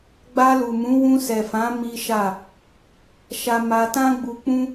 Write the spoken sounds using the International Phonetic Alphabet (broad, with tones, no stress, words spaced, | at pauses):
ɡ͡ba˧lu˨mũ˨˦ wũ˧sɛ˨fã˨˦ mi˦ʃa˦˨ | ʃa˧ma˧ tã˦ɡ͡bu˧k͡pũ˦